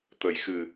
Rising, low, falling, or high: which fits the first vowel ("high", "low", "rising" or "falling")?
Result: low